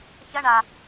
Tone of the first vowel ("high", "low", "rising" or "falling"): high